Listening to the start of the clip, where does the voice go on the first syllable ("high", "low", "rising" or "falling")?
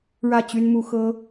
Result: falling